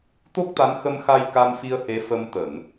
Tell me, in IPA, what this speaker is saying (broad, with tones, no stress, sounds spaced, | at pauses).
t̪ o˦˥ k̚ t̪ a˨˦ n x ə˧ m x a˧ j k a˧ m f i˧ ə̯ h e˨˦ f ə˧ m t̪ ə˧˩˨ n